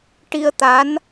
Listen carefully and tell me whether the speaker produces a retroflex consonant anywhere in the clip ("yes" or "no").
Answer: yes